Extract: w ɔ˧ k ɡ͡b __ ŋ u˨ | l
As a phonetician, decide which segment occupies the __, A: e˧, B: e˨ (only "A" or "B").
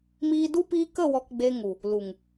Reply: A